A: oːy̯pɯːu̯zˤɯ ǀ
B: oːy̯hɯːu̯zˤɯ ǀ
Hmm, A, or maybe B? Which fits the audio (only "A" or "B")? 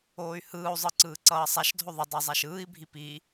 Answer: B